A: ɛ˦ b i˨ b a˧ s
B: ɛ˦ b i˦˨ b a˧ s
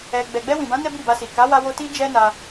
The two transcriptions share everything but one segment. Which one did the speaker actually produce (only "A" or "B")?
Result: B